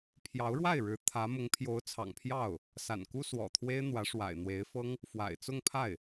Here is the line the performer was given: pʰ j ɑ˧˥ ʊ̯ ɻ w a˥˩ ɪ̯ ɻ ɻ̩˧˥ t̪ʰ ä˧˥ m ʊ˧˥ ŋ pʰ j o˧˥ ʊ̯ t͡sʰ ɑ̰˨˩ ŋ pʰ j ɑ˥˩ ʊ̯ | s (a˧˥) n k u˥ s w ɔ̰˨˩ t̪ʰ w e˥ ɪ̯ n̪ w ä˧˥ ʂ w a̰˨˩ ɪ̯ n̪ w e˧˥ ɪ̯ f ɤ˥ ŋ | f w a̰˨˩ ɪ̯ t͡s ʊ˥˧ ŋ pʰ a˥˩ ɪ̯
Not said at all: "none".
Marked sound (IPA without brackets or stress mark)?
a̰˨˩